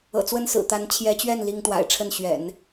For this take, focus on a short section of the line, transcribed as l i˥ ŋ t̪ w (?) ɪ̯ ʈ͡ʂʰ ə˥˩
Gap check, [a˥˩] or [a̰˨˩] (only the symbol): a̰˨˩